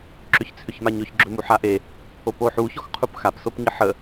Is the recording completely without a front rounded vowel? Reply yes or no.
no